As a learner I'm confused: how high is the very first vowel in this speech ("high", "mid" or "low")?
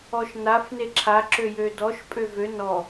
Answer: mid